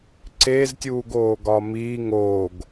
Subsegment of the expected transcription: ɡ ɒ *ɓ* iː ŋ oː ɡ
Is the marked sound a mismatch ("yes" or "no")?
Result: yes